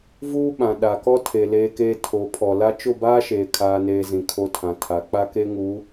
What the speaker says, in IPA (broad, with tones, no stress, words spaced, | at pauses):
vuː˦ ɓã˨ ɗa˨kɔ˦ tʰe˨ leː˦keː˦ tʰo˨˦pʰɔ˨la˦ t͡ʃʊ˦˨baː˦ʃeː˨ kʰaː˦neː˦zĩ˨ kʰo˦tʰã˨tʰa˨˦ k͡pa˦ke˦ŋu˨˦